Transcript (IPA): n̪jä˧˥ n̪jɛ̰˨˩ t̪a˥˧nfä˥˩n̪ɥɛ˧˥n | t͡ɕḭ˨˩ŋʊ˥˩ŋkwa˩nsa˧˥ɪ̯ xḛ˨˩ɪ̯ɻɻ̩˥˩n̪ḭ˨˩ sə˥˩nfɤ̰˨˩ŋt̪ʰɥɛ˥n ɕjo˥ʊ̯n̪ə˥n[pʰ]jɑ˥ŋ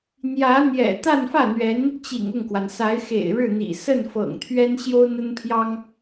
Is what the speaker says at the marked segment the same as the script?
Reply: yes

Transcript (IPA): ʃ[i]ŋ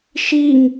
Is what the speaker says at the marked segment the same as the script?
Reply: yes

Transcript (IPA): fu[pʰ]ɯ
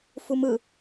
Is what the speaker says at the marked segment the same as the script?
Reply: no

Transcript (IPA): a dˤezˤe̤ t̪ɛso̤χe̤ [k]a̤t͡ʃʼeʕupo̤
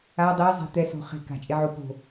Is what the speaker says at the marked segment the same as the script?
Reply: yes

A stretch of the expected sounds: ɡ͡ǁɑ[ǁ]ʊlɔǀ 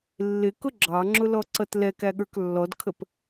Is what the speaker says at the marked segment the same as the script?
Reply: no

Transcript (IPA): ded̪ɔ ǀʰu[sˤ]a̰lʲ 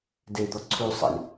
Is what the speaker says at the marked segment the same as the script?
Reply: yes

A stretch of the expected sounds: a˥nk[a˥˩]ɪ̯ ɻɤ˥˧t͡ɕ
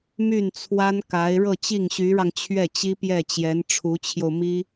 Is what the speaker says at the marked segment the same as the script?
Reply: no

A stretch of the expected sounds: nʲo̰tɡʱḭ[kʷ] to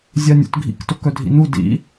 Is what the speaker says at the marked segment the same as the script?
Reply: no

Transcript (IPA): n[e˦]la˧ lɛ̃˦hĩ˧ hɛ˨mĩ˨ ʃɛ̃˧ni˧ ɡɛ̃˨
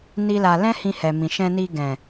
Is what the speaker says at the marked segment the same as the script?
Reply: no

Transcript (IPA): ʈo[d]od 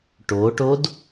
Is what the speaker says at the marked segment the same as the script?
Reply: no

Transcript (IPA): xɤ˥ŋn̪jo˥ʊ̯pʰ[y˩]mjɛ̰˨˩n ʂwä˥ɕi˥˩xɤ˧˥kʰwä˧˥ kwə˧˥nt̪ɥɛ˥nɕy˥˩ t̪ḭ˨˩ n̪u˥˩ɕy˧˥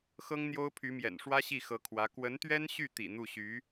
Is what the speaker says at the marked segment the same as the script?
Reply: no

